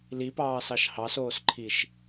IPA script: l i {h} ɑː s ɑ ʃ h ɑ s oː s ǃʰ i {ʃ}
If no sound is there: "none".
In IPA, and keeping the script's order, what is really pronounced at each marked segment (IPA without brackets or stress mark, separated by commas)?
p, ʃ